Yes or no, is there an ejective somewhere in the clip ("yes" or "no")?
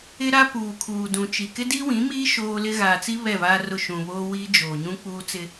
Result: no